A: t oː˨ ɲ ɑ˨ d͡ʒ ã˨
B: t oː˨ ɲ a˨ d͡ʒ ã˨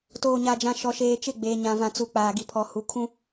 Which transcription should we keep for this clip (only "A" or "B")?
B